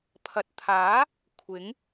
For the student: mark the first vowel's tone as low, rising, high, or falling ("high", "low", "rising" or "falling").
low